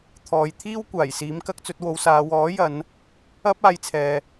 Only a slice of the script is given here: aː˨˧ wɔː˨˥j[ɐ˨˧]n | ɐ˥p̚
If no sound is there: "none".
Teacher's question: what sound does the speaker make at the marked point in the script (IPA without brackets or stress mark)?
ɐ˨˧